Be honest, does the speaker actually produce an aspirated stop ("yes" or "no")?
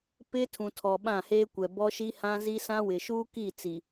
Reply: yes